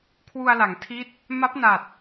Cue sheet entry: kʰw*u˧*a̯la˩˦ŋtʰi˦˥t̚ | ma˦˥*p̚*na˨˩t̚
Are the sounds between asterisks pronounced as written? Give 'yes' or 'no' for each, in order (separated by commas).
yes, yes